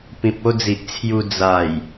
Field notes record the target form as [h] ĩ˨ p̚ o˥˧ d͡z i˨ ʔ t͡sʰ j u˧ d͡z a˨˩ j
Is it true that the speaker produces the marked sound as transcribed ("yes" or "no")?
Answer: no